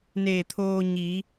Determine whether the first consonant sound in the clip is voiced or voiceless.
voiced